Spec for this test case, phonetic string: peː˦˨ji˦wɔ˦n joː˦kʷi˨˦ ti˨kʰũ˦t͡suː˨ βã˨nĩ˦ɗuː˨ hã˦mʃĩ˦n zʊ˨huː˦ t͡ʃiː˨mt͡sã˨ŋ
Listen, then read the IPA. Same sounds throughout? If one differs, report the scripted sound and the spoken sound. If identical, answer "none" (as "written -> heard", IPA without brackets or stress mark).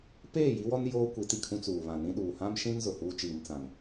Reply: none